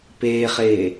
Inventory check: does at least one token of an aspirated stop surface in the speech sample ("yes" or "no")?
no